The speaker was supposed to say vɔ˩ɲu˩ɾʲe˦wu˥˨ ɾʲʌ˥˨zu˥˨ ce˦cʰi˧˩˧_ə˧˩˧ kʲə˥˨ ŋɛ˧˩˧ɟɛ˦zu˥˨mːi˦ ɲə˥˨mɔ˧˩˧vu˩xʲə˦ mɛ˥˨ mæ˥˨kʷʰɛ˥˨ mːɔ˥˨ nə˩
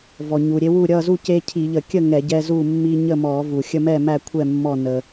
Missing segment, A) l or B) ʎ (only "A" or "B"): B